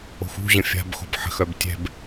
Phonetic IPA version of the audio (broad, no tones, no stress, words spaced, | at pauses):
o̤xṳʑə̃ fʲa̤bxo̤b ħə̤xœb tʲɛ̤b